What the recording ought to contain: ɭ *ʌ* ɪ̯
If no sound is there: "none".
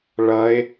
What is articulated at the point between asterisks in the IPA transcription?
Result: ʌ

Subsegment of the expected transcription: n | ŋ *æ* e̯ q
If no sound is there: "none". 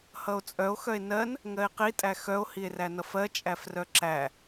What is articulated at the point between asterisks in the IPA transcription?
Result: ɜ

